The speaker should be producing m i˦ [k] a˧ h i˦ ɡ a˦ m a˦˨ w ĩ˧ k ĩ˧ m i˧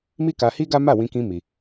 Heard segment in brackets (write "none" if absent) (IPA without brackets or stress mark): k